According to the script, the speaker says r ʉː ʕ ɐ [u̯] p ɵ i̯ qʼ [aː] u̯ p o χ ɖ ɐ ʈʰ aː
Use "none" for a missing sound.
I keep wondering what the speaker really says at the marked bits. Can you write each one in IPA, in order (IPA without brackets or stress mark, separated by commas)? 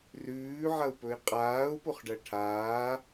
u̯, aː